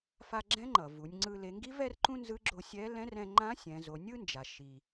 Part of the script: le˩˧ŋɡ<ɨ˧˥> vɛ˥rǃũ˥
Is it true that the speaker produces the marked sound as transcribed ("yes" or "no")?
no